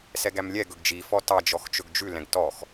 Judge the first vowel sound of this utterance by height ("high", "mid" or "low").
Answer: mid